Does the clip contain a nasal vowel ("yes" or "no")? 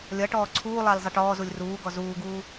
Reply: no